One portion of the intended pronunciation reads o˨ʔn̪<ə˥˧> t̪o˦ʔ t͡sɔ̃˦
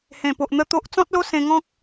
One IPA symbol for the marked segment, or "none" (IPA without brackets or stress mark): ə˧